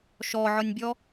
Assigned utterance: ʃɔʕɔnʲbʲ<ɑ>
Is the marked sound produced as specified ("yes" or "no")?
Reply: no